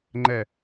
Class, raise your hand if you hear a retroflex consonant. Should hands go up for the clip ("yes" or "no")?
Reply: no